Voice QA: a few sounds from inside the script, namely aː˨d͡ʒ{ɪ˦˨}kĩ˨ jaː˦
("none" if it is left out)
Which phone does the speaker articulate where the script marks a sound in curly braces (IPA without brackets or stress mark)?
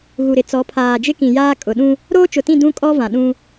ɪ˦